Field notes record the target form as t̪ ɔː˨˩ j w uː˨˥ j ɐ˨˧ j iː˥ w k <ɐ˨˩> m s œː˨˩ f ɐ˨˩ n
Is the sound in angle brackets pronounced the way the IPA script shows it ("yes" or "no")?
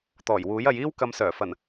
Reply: no